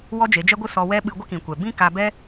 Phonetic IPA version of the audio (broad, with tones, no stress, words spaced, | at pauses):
wɔ˦d͡ʒe˨˦d͡ʒɛ˦ɡʷɨ˦ sɔ˧wɛ˦ ɓɨ˧ɡʷə˦kĩ˨kʷɛ˨ bĩ˦ka˧ bɛ˦